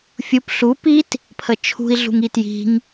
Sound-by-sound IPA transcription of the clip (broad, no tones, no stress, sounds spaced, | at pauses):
fʲ u p ɬ u p i t | pʰ ə t͡ʃʰ ṳ i̯ ɮ ṳ ŋ i t j i̤ ŋ